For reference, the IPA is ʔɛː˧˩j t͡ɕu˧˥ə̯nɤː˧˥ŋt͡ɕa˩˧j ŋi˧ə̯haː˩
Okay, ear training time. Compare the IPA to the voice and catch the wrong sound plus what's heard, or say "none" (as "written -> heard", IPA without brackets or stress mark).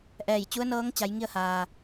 none